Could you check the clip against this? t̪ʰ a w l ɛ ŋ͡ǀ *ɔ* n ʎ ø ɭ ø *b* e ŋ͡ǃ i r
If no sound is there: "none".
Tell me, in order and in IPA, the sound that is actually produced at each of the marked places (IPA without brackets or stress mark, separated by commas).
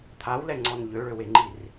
ɔ, w